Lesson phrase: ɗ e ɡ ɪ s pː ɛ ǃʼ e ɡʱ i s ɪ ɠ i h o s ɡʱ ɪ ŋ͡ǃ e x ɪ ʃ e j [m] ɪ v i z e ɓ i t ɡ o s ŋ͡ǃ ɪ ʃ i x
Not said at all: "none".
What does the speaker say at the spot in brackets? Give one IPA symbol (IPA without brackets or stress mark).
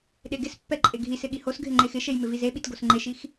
m